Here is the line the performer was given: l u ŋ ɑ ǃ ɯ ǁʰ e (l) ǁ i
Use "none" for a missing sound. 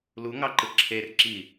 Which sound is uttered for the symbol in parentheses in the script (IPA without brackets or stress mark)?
r